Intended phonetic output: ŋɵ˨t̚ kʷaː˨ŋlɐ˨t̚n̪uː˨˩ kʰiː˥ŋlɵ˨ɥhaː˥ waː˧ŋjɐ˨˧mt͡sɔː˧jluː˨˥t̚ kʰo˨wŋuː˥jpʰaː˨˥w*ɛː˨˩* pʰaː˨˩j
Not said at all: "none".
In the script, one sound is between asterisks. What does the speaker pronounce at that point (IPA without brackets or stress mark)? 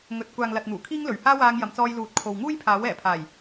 ɛː˨˩